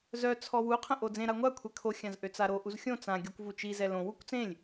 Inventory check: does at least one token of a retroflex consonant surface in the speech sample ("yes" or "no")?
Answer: no